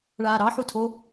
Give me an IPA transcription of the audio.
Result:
ɭ aː ɾ ɑ ħ u tʰ o

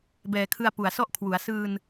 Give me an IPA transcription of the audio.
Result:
b ɛː˨˩ kʰ ɯ˧ a̯ p u˨˩ a̯ s ɔ˥˩ ʔ kʰ w u˩˦ a̯ s ɯː˧ n

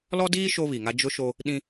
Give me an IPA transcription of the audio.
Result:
l ɔ˦ d iː˦ ʃ o˦ β i˨ ŋ a˦ d͡ʒ ʊ˦ ʃ o˦ | ɗ ĩ˦

